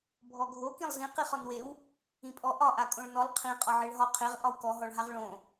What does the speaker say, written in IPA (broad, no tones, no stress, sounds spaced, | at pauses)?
bʱ ɔ ɡʱ o k ĩ lˠ z ĩ q i χ ɔ n w e w | ĩ pʼ ɔ ʔ ɒ ʔ a kʼ õ ɭ n ɔ lˠ qʰ ĩ qʼ ɒ ʕ e ɭ ɦ ɒ qʰ e ʁ ʔ ɒ w k ɔ ɦ ɔ ɭ ɦ a ʁ ɭ õ